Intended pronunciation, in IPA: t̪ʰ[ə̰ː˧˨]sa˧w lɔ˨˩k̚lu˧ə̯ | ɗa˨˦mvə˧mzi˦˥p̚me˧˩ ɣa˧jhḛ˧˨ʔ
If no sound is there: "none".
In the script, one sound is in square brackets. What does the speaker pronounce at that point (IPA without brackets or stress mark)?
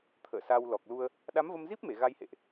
ə̰ː˧˨